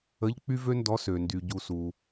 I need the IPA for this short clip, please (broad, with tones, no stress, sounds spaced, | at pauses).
ə˧˥˧ ʎ k͡p y˥ v ø˥ n d ɔ˧˥ s ø˨ n d y˨ ɟ u˨ s u˨